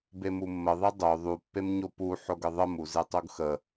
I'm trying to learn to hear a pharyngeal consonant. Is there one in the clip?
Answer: yes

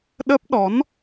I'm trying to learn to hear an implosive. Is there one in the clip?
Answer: yes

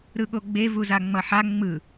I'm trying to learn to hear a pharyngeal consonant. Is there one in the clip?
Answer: yes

